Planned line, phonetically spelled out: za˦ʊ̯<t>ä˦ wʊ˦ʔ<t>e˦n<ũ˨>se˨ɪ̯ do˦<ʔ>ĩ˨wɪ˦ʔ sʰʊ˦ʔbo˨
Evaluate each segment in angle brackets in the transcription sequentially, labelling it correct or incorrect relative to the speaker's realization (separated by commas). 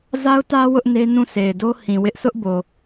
correct, incorrect, incorrect, incorrect